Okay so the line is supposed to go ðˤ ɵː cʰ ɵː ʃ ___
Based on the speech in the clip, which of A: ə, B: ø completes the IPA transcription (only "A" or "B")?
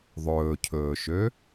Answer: B